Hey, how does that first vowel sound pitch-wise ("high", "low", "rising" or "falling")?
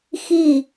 falling